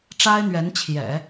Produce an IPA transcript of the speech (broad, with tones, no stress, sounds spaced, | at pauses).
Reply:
ʈ͡ʂ a˥ ɪ̯ n̪ ɥ ɛ˧˥ n t͡ɕʰ j ɛ̰˨˩˦